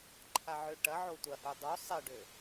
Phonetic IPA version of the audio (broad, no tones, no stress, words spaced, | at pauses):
ǃʰaʕøʈɐʕo tʷɐhu dˤu sˤɪɖø